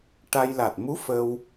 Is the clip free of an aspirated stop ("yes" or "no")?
yes